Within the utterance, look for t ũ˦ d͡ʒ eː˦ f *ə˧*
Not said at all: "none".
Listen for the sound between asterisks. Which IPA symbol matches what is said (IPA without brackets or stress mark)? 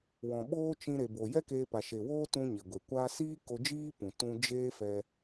ɛ˧